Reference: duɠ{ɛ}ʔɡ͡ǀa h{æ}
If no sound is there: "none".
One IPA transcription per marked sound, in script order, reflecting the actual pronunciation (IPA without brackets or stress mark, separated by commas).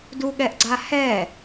ɛ, ɛ